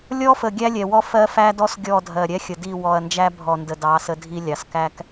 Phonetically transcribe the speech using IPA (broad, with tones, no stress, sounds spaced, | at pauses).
lʲ ɔ˦ f ə˨ ɡʲ æ˦ lʲ ɛ˨ w ɔ˦ f ɜ˦ f æ˦ d ɔ˦ s ɡʲ ɔ˦˨ dʱ ɜ˨ ɾʲ ɛ˦ xʲ ə˨ d i˦˨ w ɔ˨ ɐ̯ n d͡ʒ æ˦ bʱ ɔ˨ n d ə˨ d ɑ˨˦ s ə˦ dʱ i˦ lʲ ɑ˨ s k æ˦ k